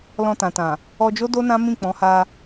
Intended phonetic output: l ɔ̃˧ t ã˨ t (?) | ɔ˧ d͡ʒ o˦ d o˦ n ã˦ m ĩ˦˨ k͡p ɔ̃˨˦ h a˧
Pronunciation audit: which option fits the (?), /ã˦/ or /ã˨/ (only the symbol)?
ã˨